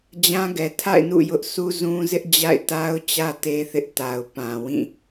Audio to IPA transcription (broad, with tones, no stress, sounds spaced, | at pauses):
d͡ʑ ã˦ ɡ ɛ˨ tʰ a̰˦˨ ɪ̯ n ṵ˦˨ j ʊ˦ ʔ s u˦ z ũ˦ z ɪ˦ ʔ d͡ʑ a̰˦˨ ɪ̯ t a˦ ʊ̯ t͡ɕ ä˦ t e˦ θ ɪ˦ ʔ t a˨ ʊ̯ p ã˨ w ĩ˦˨